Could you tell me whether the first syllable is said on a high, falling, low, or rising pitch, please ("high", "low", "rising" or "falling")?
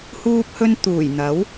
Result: high